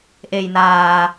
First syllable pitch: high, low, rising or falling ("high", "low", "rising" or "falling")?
low